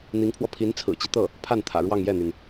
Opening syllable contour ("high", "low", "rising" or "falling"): rising